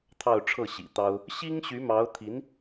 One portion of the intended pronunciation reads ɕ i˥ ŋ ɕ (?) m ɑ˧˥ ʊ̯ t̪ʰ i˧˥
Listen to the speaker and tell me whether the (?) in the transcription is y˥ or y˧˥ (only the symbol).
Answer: y˧˥